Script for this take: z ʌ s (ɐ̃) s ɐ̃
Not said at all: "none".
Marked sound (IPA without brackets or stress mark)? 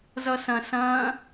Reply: ɐ̃